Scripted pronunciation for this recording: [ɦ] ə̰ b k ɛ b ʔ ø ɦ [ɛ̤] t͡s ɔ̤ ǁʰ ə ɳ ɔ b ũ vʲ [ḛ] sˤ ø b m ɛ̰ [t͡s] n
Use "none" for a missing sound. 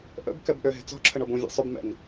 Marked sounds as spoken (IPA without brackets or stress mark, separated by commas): ʔ, e̤, ḛ, none